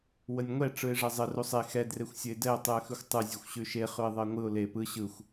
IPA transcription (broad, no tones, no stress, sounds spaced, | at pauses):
w ə nʲ ŋʷ ɛ ʈ͡ʂ ɯ ɪ̯ ʐ ɛ zˤ ə r u sˤ e x ɛ d r e xʷ sʲ ə ɪ̯ d ɛ ʊ̯ tˤ ʉ ə̯ x ʉ xʷ tˤ ɯ zʲ ʉ xʷ ɕ ʉ ʃ e χ ʉ ɪ̯ ðˤ ə ɪ̯ ŋʷ ɯ ʊ̯ l e p ɯ ɕ ɯ xʷ